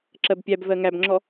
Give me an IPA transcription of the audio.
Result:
ǁ ɜ b pʲ æ b v ɜ ŋ æ b ŋ͡ǁ ɔ

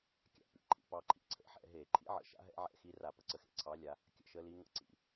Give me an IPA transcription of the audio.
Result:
kʲ a̰˨˦ p ḭ˨˦ ǃʰ ḭ˨˦ p ɑ˨˦ ǃʰ ḭ˧˩˧ ǀʰ ə̰˨˦ ħ ɛ̰˨˦ ɦ e˧˩˧ ǃʰ ḭ˦˥ ʕ ə̰˨˦ ʃ a̰˦˥ ɦ ɛ̰˦˥ ʕ ɛ̰˨˦ x i˨˦ r a˧˩˧ p ə˨˦ ǀ ə˧˩˧ x ḛ˨˦ ǀʰ ɑ˨˦ lʲ a˨˦ | kʲ ə̰˨˦ ʃ ə˨˦ l i˨˦ ŋ ə̰˦˥ ǀ ḭ˧˩˧

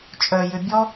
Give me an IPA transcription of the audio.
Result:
t͡ʃʼ œ j ø bʲ ɔ

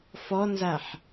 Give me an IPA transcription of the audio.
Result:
f ɔ n z a ħ

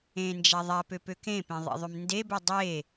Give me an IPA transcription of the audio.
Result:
ẽ n d͡ʒ a ðˤ a p ø p ø k ẽ p ẽ ðˤ ḛ ðˤ ø m n d e b ø dˤ e

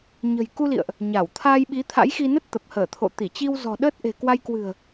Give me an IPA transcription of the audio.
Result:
ɲ ə̤˨˩ j k u˧ l ḭ˧˨ ə̯ ʔ | ɲ a˧˩ w t̪ʰ aː˧ j ɓ i˨˦ t̪ʰ a̰˧˥ j x i˧ n ə˦˥ t̚ t̪ ə˨˩ p̚ h əː˧˩ t̪ʰ o̰˧˨ t̪ i˧˩ t͡ɕ i˧ w z ɔ̤˨˩ ɗ əː˦˥ t̚ ʔ e̤˨˩ k w a˧ j k w ɨ̤˨˩ ə̯

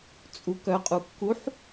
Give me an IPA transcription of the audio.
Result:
t͡sʼ u k œ qʼ u kː u ħ

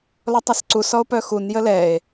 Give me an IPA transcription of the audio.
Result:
l ɔ tˤ a s ǀ u s ɔ o̯ p œ x u n j ə l ɛ e̯

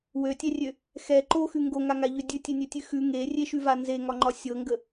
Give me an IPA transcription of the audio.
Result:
w ø tʲ ɛ rʲ ø | x ɛ ǃ o x ʉ ŋ ɡ o ŋ a ŋ a ʎ ø dʲ ʉ tʲ e nʲ ø tʲ ʉ x ʉ ŋ e rʲ e ʃ ʉ v a n z e ŋ ɒ ŋ͡ǃ ɒ sʲ ɤ ŋ ɡ ə

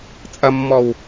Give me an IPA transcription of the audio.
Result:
t͡sʼ ɐ mː ɔ w

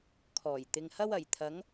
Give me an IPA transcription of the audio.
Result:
kʰ ɔː˨˩ j t̪ ɪ˨ ŋ h ɐ˥ w ɐ˨˩ j t̪ʰ ɐ˨˥ ŋ

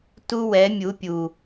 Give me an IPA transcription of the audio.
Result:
t u˦ w ɛ˨˦ mʲ u˨˦ pʲ u˨

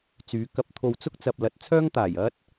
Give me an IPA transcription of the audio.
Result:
t͡s yː˨˧ k ɐ˧ p̚ t̪ʰ o˧ w t͡s ʊ˥ k̚ t͡s ɐ˨ p̚ l ɐ˨˥ t̚ t͡sʰ œː˥ ŋ t̪ aː˨˩ j ɐ˥ t̚

